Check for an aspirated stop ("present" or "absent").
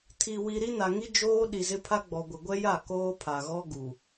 present